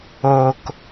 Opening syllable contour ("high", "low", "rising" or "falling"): low